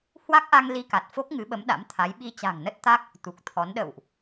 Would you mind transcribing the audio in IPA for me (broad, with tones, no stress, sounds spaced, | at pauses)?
h w a˦˥ k̚ ʔ a˧ ŋ l i˧ k a˨˩ t̚ f o˦˥ k̚ ŋ ɨ˨˦ ɓ ə˨˦ m ɗ a̰˧˥ m t̪ʰ a˨˦ j ɓ i˧ t͡ɕ a̤˨˩ ŋ n ə˦˥ t̚ t̪ a˦˥ k̚ | t̪ u˨˩ k̚ t̪ʰ ɔ˨˦ n ɗ ə̰˧˨ w ʔ